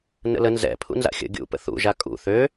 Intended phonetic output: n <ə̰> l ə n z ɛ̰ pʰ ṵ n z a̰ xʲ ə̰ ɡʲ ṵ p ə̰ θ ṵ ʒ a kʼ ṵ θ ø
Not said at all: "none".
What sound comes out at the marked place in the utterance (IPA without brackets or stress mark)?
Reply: ə̰